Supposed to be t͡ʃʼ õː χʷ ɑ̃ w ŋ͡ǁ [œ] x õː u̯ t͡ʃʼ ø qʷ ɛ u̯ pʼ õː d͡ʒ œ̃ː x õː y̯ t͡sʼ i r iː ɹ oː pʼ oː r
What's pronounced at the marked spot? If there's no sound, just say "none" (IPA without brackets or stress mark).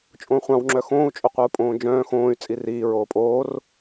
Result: œ